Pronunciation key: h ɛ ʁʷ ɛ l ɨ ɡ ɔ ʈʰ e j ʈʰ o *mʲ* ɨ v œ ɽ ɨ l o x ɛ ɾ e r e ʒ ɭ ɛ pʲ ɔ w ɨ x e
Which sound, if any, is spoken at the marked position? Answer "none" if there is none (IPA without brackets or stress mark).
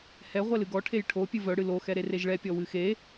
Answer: pʲ